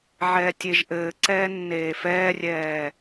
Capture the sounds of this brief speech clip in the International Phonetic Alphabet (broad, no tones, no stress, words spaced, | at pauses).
ʕɛːtʲeʒʔɘːǀɛː nːeːfɛːrʲɛː